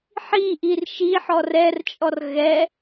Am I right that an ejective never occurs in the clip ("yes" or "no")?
no